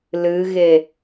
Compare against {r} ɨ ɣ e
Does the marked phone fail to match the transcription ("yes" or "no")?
yes